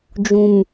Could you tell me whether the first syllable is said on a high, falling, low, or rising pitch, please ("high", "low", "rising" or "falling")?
low